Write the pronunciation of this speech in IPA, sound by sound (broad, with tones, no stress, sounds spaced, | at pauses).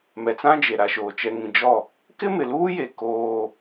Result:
m ɛ˨ t͡s ã˦ d͡ʒ e˨ ɾ a˨ ʃ oː˨ t͡ʃ ɛ˨ ŋ ĩ˨ d͡ʒ ɔ˦˨ | k ɪ˦ m ɪ˨ l uː˦ j e˨ k oː˦